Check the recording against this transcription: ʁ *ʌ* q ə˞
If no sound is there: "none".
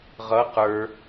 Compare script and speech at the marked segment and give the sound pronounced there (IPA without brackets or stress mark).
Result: ʌ